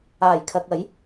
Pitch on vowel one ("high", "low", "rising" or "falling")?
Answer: low